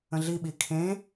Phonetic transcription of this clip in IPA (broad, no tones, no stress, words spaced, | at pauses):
ə̃ɮiɓi kʰẽ